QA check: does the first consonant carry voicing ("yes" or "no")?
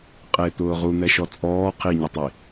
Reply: no